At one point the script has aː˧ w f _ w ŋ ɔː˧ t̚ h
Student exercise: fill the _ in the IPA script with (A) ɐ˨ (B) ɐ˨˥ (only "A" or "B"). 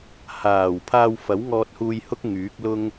B